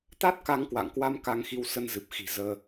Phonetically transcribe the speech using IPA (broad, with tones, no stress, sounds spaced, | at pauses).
t̪ a˦˥ t̚ k a˧ ŋ k w a̰˧˨ ŋ k w a˧ m k a˧ ŋ x i˧ w s ə˧ n z ɨ˨˩ p̚ x i̤˨˩ z əː˧